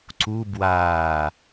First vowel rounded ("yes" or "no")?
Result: yes